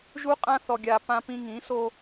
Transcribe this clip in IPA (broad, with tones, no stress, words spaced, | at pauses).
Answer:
ʒu˦qʼã˦ θɔ˨ɡʲa˨ pã˦pĩ˦ ŋĩ˨˦so˦